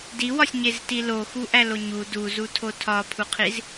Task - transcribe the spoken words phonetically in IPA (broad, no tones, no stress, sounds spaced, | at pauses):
d i w ɒ sʲ ɲ e z t i l o x u ʔ æ l o ɲ u d u z u tʰ o tʰ ɒ pʰ u qʰ i z